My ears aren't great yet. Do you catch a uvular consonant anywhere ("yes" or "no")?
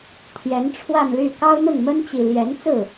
no